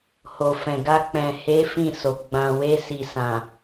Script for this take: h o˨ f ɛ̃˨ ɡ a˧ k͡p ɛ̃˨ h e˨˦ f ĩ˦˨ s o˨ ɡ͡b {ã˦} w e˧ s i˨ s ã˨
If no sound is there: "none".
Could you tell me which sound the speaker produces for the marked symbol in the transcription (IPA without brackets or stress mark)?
ã˨